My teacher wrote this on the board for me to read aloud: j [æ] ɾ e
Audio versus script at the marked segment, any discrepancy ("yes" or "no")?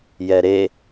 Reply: yes